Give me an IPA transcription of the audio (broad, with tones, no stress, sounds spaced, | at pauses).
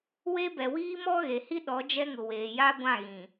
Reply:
w e˦ b ɛ˨ w iː˦ m ɔ˦ ɣ e˨ h i˦ ɗ ɔ˨˦ d͡ʒ ɛ˦ ŋ ʊ˨ w eː˨ j a˦ ɡʷ ã˦˨ ɣ ĩ˨